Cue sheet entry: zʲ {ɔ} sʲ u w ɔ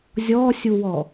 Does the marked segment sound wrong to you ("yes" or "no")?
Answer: no